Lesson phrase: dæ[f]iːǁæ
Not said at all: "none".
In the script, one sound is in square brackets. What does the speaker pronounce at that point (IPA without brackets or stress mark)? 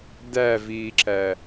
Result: v